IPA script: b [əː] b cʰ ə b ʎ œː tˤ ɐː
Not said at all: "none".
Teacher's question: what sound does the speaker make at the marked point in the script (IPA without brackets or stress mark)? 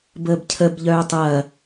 əː